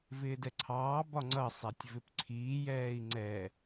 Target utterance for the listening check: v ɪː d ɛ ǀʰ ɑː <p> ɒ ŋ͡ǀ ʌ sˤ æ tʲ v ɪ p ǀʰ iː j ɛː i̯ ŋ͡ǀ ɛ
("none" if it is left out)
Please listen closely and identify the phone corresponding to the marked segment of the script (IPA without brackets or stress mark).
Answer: b